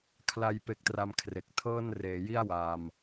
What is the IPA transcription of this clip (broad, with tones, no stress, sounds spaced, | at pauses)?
kʰ l a˧ j p e˦˥ k̚ t r a˧ m kʰ r e˨˩ k̚ tʰ ɤː˥˩ n r eː˩˦ j i˥˩ a̯ w a˧ m